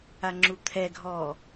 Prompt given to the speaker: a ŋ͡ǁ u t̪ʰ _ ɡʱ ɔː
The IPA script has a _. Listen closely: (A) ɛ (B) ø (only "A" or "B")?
A